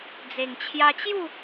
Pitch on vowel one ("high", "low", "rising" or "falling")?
low